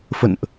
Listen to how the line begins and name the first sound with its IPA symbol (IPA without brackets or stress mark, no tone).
f